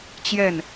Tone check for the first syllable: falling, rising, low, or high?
falling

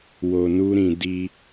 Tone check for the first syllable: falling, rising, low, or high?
low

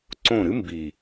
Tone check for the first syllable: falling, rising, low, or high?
falling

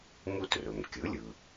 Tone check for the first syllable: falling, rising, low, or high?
high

